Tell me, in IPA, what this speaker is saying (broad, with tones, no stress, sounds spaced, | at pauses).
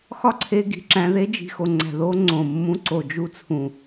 x ɒ˦ ǀʰ e˧ ɡ i̤˨ ǁ æ̃˧ ð e˧ d͡ʒ i̤˨ x o˨ ŋ͡ǀ æ̤˨ ð o˧ ŋ͡ǀ õ˨ mː ũ˧ ǀ o˨ d͡ʒ u˧ t͡sʰ ũ˨